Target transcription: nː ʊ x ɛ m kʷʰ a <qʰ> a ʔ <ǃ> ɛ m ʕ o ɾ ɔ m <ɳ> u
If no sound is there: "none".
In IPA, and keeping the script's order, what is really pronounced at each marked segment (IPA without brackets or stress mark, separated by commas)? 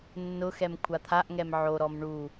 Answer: t̪ʰ, ŋ, ɳ